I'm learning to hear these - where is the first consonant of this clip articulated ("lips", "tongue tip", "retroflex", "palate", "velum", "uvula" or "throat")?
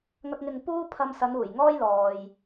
velum